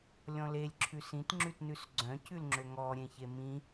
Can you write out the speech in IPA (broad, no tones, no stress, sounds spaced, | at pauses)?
lʲ ɔ̃ l e lʲ ǁʰ ʉ s ĩ t ŋ͡ǁ ʉ t n ʉ s ɡ͡ǀ œ̃ c ʉ l ŋ͡ǁ ø ŋ ɔ ɾʲ ẽ ç e m ĩ